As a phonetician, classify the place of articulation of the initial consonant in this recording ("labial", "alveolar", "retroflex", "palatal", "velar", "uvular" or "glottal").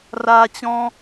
alveolar